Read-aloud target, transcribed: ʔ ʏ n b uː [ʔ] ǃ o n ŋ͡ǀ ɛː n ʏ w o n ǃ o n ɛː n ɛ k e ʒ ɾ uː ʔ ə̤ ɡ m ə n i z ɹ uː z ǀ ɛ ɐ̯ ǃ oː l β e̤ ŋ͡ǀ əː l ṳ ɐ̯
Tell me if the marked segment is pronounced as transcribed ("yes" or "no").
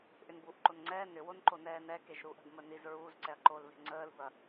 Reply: yes